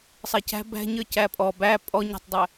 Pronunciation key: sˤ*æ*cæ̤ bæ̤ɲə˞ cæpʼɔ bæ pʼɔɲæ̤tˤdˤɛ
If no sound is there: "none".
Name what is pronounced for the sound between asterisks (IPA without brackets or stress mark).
ɛ